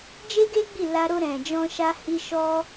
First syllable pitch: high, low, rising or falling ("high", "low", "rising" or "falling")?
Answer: high